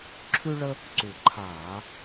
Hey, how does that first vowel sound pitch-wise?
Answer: high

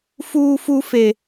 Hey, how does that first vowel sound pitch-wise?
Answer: high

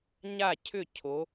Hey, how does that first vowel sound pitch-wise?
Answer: falling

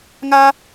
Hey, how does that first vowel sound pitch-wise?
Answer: high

